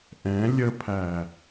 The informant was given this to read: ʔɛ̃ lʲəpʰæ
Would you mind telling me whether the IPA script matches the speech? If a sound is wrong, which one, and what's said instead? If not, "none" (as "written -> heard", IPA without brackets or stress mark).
none